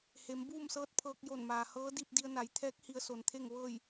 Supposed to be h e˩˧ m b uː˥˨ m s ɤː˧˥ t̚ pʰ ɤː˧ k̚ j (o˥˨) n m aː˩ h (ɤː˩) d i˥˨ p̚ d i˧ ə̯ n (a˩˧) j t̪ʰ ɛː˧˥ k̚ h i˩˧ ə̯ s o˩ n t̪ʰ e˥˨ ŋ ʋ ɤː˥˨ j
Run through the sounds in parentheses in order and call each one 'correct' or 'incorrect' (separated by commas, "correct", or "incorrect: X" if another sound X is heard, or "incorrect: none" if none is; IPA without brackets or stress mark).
incorrect: o˧˩, incorrect: ɤː˧˥, correct